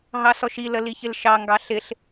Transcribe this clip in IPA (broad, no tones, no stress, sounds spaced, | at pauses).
ɦ ɑ s ɔ ʃ i l ə l i ç ɪ l ʃ ɑ ŋ ɡ ɑ ɬ ɪ ɬ